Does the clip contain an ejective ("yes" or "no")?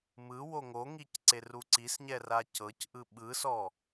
no